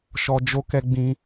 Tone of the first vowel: high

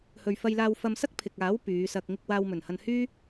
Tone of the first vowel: low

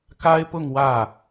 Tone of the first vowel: high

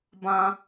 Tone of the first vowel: high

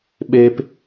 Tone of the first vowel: high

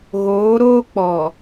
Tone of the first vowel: rising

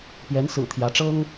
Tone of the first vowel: rising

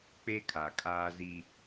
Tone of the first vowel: high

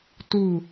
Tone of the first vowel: falling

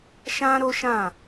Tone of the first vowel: high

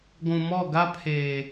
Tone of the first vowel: low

